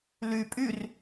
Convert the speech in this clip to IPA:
l y pʼ y r

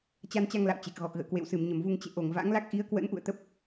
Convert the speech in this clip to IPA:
t͡ɕ a˧ n t͡ɕ a˧ ŋ l a̰˧˨ w t͡ɕ e˨˩ k̚ ɣ ɔ˨˩ k̚ ɣ ə̰ː˧˨ k w ḛ˧˨ w s ɨ˧˩ m ɲ ə˧˩ m v u˧ ŋ t͡ɕ ḛ˧˨ ʔ o˧˩ ŋ v a̰˧˥ ŋ l a˦˥ k̚ ʔ i˨˦ ə̯ k w ə̰˧˥ n ʔ ṵ˧˨ ə̯ t̪ ə˦˥ p̚

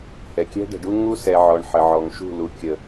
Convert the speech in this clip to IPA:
h ɛ˨ kʲ ɛ̤˦ ɖ ə̤˨ ɖ u˦ ŋ u˦ s ɛ˨ ʕ ɔ˨ ɳ ħ ə˨ ʕ ɔ˨ ŋ ʃ ṳ˦˨ l u˨ kʲ ə˨

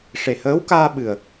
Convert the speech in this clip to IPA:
ʂ e˨˩ h əː˧˥ w k aː˧ ɓ ɨ˨˩ ə̯

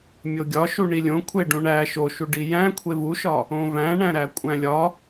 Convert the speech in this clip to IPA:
mʲ o ɡʲ ɒ ʃ u ɳ i lʲ õ kʷʰ e ɖ ũ ɳ æ ʃ o ʃ u ɖ i j æ̃ kʷʰ e v u ʃ ɒ | õ v æ̃ ɳ æ̃ ɾ æ kʷʼ æ̃ lʲ ɒ

